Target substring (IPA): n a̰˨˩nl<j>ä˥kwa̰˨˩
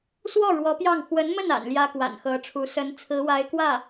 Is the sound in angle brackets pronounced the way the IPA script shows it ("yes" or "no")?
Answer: yes